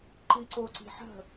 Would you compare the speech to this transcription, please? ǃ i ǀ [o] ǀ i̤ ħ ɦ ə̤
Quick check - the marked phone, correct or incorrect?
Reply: correct